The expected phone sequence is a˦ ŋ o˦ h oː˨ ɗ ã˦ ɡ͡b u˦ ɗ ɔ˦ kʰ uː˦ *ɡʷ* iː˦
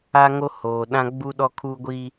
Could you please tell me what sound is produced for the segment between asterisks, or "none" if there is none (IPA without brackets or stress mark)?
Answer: ɡʷ